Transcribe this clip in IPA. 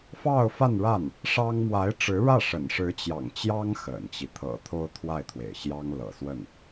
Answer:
f ɑ˥˧ ʊ̯ f a˥˧ n ɻ a˥˩ n | ʂ ɑ˥ ŋ m w a˧˥ ɪ̯ ʈ͡ʂ ɻ̩˧˥ ɻ ä˥˩ ʂ ə̰˨˩ n ʂ ɻ̩˧˥ t͡ɕ j ɑ̰˨˩ ŋ t͡ɕ j ɑ˥ ŋ x ə̰˨˩ n t͡ɕ i˦ t̪ʰ ɤ̰˨˩ t̪ʰ o˥ ʊ̯ t̪ʰ w a˥˩ ɪ̯ t̪ʰ w ḛ˨˩ ɪ̯ ɕ j ɑ˥ ŋ l ɤ̰˨˩ s w ə˥˩ n

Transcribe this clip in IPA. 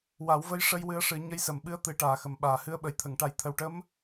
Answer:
w a˨˩˦ w v ə˧˥ j ʂ ə˧ j w ɨ˧˥ ə̯ ʂ ɨ˨˩˦ ɲ ə˧˥ j s ə˨˩˨ m ɓ ɨ˧˥ ə̯ t̪ ɨ˨˩˦ ʈ aː˨˩ x ə˨˩˨ m ɓ aː˨˩˨ h ɨ˧˥ ə̯ ɓ ə˨˩˨ j t̪ʰ ə˨˩˨ ŋ ʈ a˨˩˨ j t̪ʰ ə˨˩ w ʈ ə˧˥ m

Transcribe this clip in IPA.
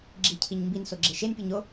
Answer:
ɡ͡ǁ i cʰ i ɲ m b i n s o ɡ͡ǁ e ʃ e n pʲ u ɲ o

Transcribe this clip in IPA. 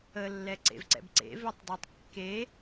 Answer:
ə lː ɛ ǀ ḛ v ǀ ɛ̰ b ǀ ḛ v e tˤ dˤ o tˤ kː e

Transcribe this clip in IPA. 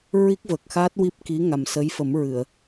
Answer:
ɹ i˦˥ k̚ v ə˨˩ k̚ x a˦˥ t̚ w i˦˥ p̚ k i˧˥ ŋ a˨˩ m s ə˧˥ j f ə˨˩˦ m ɹ ɨ˨˩˨ ə̯

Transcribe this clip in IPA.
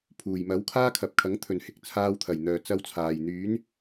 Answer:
pʰ uː˨˩ j m ɐ˨˥ w kʰ aː˥ kʰ ɐ˨ p̚ kʰ ɐ˨˥ ŋ t̪ʰ ɵ˨ n h ɪ˨ k̚ t͡sʰ aː˧ w t̪ʰ ɐ˨˩ j n̪ œː˨ t͡s ɐ˥ w t͡sʰ aː˨ j n̪ yː˨˥ n

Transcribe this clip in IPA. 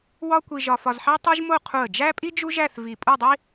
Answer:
w ɒ˥ kʷ i˧ ʒ ɒ˧ f ɒ˧ z ħ æ˥ tˤ o˥ ʒ m o˥˧ qʰ u˧˩ ə̯ d͡ʒ æ˥ pʼ i˥ d͡ʒ u˥ ʒ æ˥˧ θ v i˧˩ pʼ u˥˧ dˤ i˥

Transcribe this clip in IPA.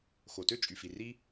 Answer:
x o˩ t ø˥ t͡ʃʼ y˩ f i˩ r i˥

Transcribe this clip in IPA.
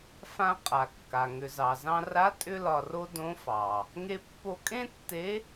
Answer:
f ã˧ qʼ a˩ kː a˩ ŋ ʏ˩ z ɑ˩ z ɑ̃˧ r a˧˥ tʼ ʏ˥ l ɒ˧ r o˥ d õ˧˥ f ɑ˩ | ŋ e˧ pː o˧ kʼ ẽ˥ tː e˧˥

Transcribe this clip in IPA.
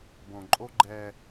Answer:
b õ˨ ǃʼ o˦ ɡ͡ǃ ɛ˦

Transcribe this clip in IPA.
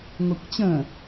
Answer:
ŋʷ ɛ kʷ t͡ɕ ə̃

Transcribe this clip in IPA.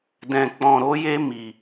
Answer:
d ɛ̃˧ k͡p ɔ̃˧ ɾ o˦ j e˦ m i˧

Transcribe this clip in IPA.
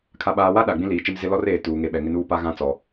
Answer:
kʰ a˨ ɓ aː˨ w a˦ ɗ a˨ ɡ͡b ĩ˦ l iː˨ t͡ʃ ɪ˦ m z ɪ˦ l ɔ˦ r eː˨ t uː˨ ŋ e˨ ɓ ɛ˨ ŋ ɪ˦ n uː˦ p a˦ ɣ ã˦ t͡s ɔ˨

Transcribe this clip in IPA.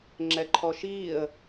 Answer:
ŋ͡ǁ ɛ ǃʰ ɔ ʃ iː ə̯

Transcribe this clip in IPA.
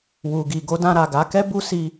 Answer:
w u˨ ɡ i˨ ɡ o˨˦ d ã˧ ɾ a˨ ɡ a˨˦ k ɛ˦ b u˧ s i˧

